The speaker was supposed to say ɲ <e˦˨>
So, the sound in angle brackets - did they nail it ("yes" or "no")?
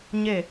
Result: yes